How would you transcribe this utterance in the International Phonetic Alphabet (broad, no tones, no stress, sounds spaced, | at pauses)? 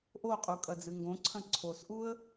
ʔ o qʼ u kʼ ɐ d͡z ɨ ŋ ɡ õ ǀʰ ɐ̃ ǀʰ o s ʔ u ə̯